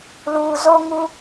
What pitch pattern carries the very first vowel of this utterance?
low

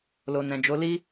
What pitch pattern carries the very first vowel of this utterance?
low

